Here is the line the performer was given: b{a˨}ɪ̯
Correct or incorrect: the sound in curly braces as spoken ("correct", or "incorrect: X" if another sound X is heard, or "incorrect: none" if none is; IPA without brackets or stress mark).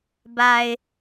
correct